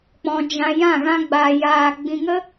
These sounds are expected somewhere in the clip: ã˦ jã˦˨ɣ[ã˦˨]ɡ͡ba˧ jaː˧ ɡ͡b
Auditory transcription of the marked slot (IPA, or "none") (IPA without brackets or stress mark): ã˦